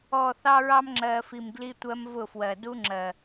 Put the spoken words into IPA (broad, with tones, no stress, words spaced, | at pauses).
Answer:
ɔ˨ θɑ˦ɹɑ˦mŋ͡ǁɜː˨fi˨m ɡli˦tʷɜ˦m vʊ˦˨fwɜ˨ du˦ŋ͡ǁɜ˨